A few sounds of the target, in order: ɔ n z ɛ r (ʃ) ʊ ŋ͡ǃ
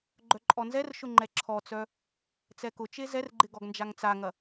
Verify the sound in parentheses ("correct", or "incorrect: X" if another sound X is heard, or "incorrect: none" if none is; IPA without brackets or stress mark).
correct